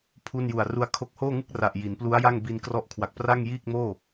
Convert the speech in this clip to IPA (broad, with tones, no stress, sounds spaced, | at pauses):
pʰ u˥˩ n j u˨˩ a̯ r u˧ a̯ kʰ o˦˥ k̚ h oː˥˩ ŋ ɯ˥˩ k̚ r a˨˩ ʔ j i˩˦ n p l u˦˥ a̯ j a˥˩ ŋ b i˧ n k r ɔ˦˥ ʔ kʰ w a˨˩ k̚ p r a˥˩ ŋ j iː˥˩ k̚ m oː˥˩